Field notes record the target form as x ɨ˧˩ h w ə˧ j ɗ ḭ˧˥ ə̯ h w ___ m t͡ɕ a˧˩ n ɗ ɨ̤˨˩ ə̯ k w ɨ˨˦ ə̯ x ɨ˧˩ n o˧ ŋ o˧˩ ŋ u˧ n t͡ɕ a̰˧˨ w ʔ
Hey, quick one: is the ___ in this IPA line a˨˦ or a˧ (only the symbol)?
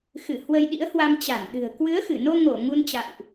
a˧